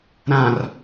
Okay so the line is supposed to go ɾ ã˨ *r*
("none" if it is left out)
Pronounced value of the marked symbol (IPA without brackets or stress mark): r